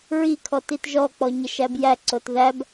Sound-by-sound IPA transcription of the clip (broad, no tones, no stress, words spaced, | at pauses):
ɹikʰɔt itʒɔk͡pɔ ɲəʃæbjæǀot ðæb